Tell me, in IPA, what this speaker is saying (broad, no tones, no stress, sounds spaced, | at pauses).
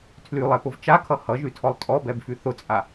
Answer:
tʰ l y lˠ ɛ p ʊ v t͡ʃ a kʰ ʌ h ʌ ʒ y tʰ ɔ lˠ tʼ ɔ b ɛ b f y θ ʊ t͡sʼ a